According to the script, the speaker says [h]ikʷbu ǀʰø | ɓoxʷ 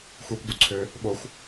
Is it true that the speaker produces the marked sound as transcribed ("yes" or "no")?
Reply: no